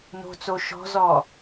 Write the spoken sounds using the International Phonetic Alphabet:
n o̤ t͡s o ʃ ɔ̤ z ɔ

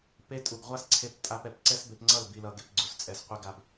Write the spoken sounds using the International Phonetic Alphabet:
p e˦ tʼ u˨ ɡ ʁʷ a˦ s ǀʰ e˧ p tʼ a˦ p ɛ˨ p ǀ ɛ˦ s b e˧ p ŋ͡ǀ ʌ˦˨ l b i˧ l ʌ˧ ɡ e˧ p ɡ͡ǀ u˨ s t͡sʼ ɛ˧ s qʷ i˦ ɡ a˦ b

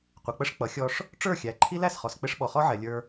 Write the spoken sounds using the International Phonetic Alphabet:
qʷ ɪ˨ k͡p ə˦ ʂ k͡p ʌ˨˦ xʲ ɔ˦ ʂ | ʈ͡ʂ ə˞˦˨ xʲ æ˨ ǃʰ i˦ l æ˨ s χ ɔ˨ s k͡p ɪ˦ ʂ ɓ ɔ˨ χ ɔ˦ ʕ ɛ˨ lʲ ə˞˦

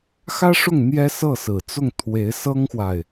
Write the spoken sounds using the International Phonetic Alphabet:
x ä˥ ʂ ʊ˥˩ ŋ n̪ j ɛ˥ s ɤ˥˩ s ɹ̩˨˩ t͡s ʊ˥˩ ŋ t̪ʰ w e˧˥ ɪ̯ s ɤ˥ ŋ x w a˨ ɪ̯

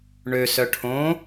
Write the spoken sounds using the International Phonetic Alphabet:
ɳ ø s œ ʈʰ õ

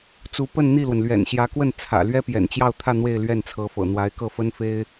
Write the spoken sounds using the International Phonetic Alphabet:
t͡s u˧˥ p ə˥˧ n n̪ i˥˩ l w ə˩ n l ɥ ɛ̰˨˩ n ɕ j ä˧˥ k w ə˥˩ n t͡sʰ ä̰˨˩ l ɥ ɛ˥ p j ɛ̰˨˩ n t͡ɕ j ɑ˥˧ ʊ̯ t̪ʰ ä˥˧ n̪ w e˥˧ ɪ̯ l ɥ ɛ˥˩ n t͡sʰ ɤ˧˥ f ɤ̰˨˩ n̪ w a˧˥ ɪ̯ k ɤ˥˩ f ə˥ n f e˥ ɪ̯

